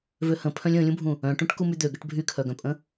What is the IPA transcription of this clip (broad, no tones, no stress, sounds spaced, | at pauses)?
v ø h ə̃ pʰ œ̃ lʲ ə̃ː lʲ ũ bʱ ũ | œ̃ ʈ ũ ʈ k u m y d̪ ø ɡ ə ʈ bʱ y kʰ œ ɡ œ̃ pʼ ə̃